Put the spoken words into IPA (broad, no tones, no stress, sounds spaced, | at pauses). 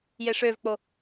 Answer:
j e ʂ ø v k͡p o